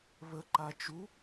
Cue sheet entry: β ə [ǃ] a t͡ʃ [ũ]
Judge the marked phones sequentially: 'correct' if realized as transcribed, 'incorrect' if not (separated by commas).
correct, incorrect